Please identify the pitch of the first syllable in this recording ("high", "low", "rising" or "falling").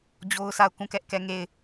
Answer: high